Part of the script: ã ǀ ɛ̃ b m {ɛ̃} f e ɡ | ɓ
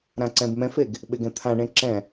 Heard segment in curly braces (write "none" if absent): ɛ̃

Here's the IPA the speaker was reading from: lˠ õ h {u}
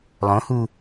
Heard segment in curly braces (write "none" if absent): u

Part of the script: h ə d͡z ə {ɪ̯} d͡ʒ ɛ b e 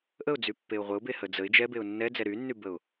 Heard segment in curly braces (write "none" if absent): ɪ̯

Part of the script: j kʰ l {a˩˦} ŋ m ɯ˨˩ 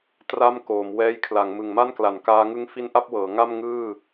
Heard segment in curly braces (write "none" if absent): a˩˦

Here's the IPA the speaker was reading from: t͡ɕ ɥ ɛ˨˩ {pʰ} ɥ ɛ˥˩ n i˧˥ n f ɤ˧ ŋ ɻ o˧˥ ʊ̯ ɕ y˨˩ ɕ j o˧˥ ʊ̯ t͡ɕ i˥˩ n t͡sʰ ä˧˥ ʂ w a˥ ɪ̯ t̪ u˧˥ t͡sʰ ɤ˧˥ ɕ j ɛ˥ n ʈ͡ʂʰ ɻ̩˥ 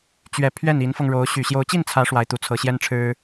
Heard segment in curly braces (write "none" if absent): pʰ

